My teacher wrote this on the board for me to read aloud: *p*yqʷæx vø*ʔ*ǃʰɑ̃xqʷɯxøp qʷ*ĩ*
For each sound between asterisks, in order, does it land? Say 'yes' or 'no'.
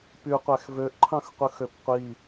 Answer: yes, yes, no

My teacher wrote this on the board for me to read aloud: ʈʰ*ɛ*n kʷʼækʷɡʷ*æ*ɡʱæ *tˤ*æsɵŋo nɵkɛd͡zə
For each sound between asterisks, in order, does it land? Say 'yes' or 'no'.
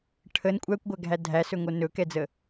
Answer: no, yes, no

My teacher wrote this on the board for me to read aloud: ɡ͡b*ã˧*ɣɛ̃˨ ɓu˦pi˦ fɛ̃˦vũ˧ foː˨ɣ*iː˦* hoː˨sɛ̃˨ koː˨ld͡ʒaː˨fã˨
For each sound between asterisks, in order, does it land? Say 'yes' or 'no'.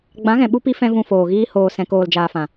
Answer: no, yes

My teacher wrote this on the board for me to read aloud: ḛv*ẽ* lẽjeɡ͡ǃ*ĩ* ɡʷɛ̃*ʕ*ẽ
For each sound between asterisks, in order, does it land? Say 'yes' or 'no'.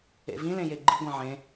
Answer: no, no, yes

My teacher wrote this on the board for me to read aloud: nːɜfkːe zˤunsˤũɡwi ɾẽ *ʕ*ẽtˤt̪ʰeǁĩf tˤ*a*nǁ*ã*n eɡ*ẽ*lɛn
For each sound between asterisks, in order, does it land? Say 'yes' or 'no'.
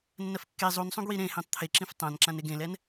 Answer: no, no, yes, yes

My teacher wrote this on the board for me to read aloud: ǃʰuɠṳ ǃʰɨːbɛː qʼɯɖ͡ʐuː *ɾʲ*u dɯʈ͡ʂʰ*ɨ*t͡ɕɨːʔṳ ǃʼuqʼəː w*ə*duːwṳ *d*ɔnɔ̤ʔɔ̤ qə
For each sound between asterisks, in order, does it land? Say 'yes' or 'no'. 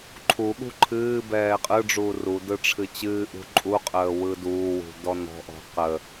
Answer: no, yes, no, yes

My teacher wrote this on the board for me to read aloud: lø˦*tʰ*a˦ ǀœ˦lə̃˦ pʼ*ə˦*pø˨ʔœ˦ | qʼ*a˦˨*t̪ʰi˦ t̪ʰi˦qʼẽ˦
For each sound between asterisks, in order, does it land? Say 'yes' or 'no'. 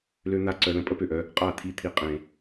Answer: no, yes, yes

